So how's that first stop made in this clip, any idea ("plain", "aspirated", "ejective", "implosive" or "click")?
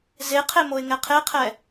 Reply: aspirated